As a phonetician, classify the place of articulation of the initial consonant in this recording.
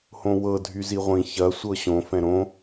glottal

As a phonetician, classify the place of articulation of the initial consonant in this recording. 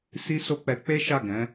alveolar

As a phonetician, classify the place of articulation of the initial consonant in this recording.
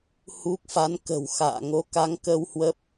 glottal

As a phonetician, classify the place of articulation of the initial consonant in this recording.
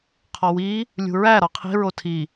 uvular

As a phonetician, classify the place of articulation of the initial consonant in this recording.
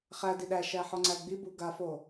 uvular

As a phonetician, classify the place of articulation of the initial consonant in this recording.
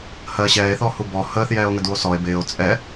glottal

